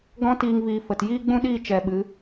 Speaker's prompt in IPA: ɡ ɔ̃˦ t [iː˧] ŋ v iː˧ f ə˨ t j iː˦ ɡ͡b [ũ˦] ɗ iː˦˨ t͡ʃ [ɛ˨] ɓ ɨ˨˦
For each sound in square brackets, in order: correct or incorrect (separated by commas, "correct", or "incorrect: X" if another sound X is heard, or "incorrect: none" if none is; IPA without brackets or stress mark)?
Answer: incorrect: iː˦, correct, correct